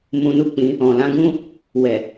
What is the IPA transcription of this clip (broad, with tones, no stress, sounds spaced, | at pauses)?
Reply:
m ũ˧ n u˦ k͡p ĩ˧ | ɔ̃˨ l ã˨˦ ɡ ũ˦ | w ɛ˨